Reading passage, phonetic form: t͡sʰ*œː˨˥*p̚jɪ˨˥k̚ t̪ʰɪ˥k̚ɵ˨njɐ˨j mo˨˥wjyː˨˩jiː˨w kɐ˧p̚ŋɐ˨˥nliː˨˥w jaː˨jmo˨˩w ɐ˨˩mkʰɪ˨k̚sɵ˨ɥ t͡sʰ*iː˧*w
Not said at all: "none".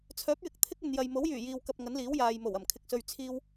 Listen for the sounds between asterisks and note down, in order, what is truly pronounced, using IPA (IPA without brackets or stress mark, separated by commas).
œː˨˥, iː˧